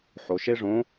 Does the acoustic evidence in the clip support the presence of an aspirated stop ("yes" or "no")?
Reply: no